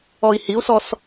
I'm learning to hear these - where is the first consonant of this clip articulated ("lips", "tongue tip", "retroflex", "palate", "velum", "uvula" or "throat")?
throat